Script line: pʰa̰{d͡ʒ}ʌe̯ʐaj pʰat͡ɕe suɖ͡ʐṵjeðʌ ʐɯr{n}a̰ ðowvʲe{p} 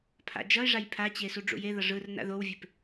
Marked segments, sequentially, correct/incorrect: correct, correct, correct

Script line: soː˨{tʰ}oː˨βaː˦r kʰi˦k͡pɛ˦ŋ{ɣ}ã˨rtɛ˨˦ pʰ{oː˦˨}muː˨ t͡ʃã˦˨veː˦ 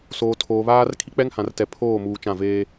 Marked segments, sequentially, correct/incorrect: correct, incorrect: h, correct

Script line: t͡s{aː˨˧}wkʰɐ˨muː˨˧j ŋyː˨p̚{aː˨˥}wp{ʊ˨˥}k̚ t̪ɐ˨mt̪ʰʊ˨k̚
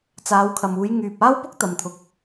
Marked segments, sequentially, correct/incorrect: correct, incorrect: aː˥, incorrect: ʊ˥

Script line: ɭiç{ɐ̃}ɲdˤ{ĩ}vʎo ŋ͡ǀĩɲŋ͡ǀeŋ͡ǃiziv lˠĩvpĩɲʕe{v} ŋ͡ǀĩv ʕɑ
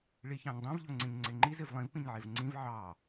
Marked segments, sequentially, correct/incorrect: incorrect: ɑ̃, correct, correct

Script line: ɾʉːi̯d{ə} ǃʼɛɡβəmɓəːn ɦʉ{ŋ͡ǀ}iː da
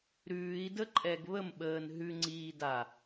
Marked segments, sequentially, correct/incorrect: correct, correct

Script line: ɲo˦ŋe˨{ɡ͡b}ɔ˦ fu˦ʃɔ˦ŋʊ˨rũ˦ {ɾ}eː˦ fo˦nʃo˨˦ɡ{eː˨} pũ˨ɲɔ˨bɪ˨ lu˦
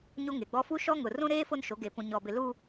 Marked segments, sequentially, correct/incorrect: correct, correct, correct

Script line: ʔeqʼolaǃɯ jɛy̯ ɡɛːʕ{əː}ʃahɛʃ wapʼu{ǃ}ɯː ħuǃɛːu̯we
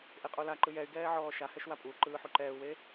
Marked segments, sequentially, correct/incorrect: incorrect: ɔː, correct

